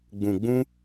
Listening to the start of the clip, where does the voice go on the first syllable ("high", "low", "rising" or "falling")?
low